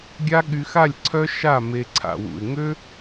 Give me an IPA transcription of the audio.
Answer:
ɡʲ a˦ ɠ y˧ x a˦˨ lʲ ǀʰ œ˦ ʃ a˦˨ m e˧ ǀʰ a̰˨ w ṵ˨ ɪ̯ ŋ ø˦

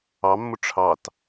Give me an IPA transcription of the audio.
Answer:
ɑ mː ʊ ʈ͡ʂʰ ɑ t

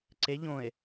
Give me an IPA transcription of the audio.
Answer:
ǀ e ʎ õ e̯

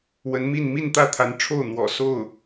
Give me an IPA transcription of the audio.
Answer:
w ə˧˥ n m i˥˧ n m i˥˧ n t̪ ä˥˩ t̪ʰ a˧˥ n ʈ͡ʂʰ o˥˩ ʊ̯ n̪ w ɔ̰˨˩ s o˥˩ ʊ̯

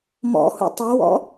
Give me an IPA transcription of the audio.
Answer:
m ɔ̰ h ṵ tˤ o w ɔ̰

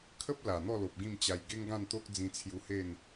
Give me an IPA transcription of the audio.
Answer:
kʰ ə˦ p̚ l a˨˩ n̪ ɔ˥˧ l o˨ p̚ ɡ ĩ˥˧ m t͡ɕ a˧ j ɡ e˦ ŋ ɡ ã˥˧ n t̪ o˦ k̚ d͡z ĩ˧ t͡sʰ j u˧ h e˥˧ n

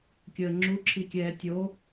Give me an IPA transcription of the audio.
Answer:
kʲ əː ŋ͡ǁ u ǁʰ i kʲ ɛː tʲ o

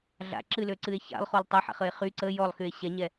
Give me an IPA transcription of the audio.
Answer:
ɮ a̰ ǁ ɨ l ø ǀ ɨ e̯ ç a̰ lˠ χ o lˠ tˤ ø ħ a̰ χ ə e̯ χ y ǀ ə j ɔ lˠ x y e̯ ɕ ɛ ɲ ɛ

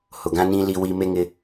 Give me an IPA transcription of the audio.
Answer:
h ʊ˨ ɡ ã˦ n ĩ˦ l i˦ w i˦ m e˦ ŋ ɪ˦

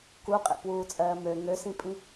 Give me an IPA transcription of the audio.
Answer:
k u qʼ ḛ p w uː t͡sʼ ɜː m ø ŋ ø s ĩ pʼ ĩ

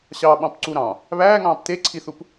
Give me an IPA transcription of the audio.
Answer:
ɕ ɑ ɓ ɑ̃ p ǀ u ɾ ɑ̃ | β æː ŋ ɑ̃ː p t e ǀʰ i θ u p

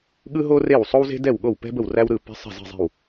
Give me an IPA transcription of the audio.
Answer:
ɠ ɯ˥ ɦ o˥ r e˥˩ w sˤ o˥ w z e̤˥ d ɛ˥˩ w ɠ o˥˩ w p ɛ̤˥ b ə˥˩ w r æ˥ w ɾ ɯ˥˩ p ɛ̤˥ sˤ ɛ̤˥˩ z i̤˥˩ zˤ e̤˥˩ w

